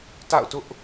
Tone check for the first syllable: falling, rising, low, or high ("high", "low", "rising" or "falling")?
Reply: falling